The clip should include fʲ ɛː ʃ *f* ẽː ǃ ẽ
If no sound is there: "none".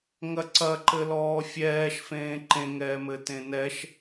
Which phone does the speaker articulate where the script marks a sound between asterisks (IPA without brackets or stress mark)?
f